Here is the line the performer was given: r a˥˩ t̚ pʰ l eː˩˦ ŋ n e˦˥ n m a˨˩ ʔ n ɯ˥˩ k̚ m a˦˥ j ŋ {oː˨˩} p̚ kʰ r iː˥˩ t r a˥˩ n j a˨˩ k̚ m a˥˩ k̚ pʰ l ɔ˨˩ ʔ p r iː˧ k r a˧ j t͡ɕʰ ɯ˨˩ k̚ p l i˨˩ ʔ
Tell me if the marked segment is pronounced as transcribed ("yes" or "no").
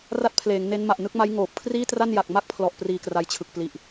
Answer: yes